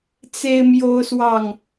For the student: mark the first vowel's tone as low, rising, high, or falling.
high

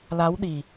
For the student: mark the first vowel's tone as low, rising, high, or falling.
rising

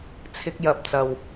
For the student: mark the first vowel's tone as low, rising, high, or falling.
high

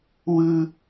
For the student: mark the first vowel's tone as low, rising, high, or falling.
high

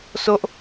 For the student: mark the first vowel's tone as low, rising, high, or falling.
high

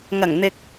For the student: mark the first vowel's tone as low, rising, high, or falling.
low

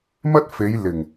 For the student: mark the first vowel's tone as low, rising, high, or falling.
high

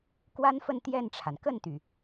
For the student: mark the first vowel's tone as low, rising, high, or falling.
high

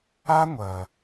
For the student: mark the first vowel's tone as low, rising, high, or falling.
high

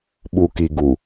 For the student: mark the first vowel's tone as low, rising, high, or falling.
low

